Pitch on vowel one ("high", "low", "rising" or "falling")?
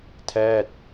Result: falling